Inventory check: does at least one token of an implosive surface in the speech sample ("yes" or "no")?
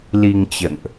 no